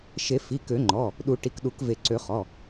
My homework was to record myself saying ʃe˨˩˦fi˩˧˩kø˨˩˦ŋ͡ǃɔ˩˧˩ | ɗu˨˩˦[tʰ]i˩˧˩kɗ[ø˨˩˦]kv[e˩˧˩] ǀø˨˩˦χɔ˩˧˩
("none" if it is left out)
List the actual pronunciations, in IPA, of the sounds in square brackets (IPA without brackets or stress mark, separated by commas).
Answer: ʈ, u˨˩˦, e˨˩˦